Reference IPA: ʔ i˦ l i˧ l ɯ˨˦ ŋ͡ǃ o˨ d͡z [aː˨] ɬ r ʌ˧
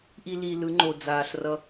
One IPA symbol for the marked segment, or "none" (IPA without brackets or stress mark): aː˨